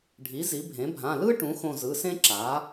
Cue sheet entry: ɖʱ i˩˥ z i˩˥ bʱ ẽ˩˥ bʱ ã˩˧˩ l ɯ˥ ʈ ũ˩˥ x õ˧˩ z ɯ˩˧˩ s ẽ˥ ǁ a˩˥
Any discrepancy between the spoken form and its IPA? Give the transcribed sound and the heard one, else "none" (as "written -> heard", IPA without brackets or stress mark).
none